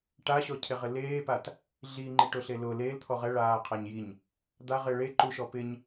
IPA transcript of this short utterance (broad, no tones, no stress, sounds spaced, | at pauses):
ʈ a ɕ ɔ cʰ e ʁ ɪ l eː p a t | ɮ i ŋ͡ǃ i ʈ ʊ ɬ e l ʊ l e l t̪ʰ ɔ ʁ ɛ ɭ aː qʰ a ɲ j i ɲ | d̪ a ʁ ɪ ɭ e ǃ u ʃ ɔ p ɪ ɲ